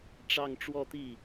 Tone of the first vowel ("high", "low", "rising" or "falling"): falling